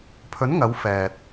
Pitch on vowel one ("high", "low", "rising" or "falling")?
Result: rising